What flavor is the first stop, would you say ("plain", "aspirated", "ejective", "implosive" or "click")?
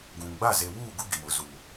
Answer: plain